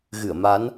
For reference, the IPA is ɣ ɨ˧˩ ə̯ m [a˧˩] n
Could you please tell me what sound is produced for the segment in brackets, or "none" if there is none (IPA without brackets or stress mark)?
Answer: a˨˦